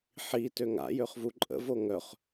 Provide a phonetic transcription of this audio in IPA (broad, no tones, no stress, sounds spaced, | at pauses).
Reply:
ħ i t ø ŋ a̰ j ø χ v u ǃʼ ə̰ v o ŋ œ χ